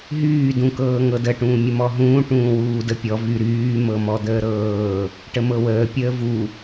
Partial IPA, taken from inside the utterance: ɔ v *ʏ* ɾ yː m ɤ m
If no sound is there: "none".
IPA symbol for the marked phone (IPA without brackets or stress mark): y